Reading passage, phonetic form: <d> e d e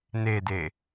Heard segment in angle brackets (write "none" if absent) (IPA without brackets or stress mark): n